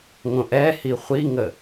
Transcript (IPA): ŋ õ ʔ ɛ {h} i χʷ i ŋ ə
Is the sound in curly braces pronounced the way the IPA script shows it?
yes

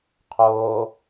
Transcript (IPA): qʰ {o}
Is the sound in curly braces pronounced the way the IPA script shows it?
no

